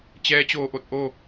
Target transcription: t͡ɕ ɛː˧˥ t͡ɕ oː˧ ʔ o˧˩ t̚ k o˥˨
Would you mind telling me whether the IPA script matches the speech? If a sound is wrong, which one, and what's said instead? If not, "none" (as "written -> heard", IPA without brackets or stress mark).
k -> ʔ